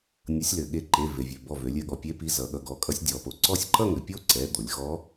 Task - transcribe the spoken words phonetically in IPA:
nʲ ʌ˩˧ sʲ l ɘ˩ ɠ e˧˩ ǃ e˩˧˩ v e˩ vʲ ø˩ b ɔ˧˩ v ø˩˧ lʲ ɘ˧˩ ɠ ɔ˩˧˩ pʲ e˧˥ p i˩˧˩ z ʌ˩˧ ɠ ʌ˩˧˩ ɡ ɔ˧˩ kʼ ʌ˧˥ sʲ dʲ ɔ˩˧ p o˩ ǀ ɔ˥˧ sʲ ǃ ʌ˥˧ ŋ ɘ˩ pʲ o˥˧ ǀ ɛ˩˧˩ d̪ o˩˧ lʲ x ɔ˧˥

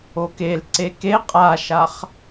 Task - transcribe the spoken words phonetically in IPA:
o k e l ǀ e k e qʼ a ʃ a χ

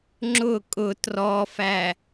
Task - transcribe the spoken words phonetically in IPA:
ŋ͡ǁ ʊ kʼ ʊ t r ɔ f æ

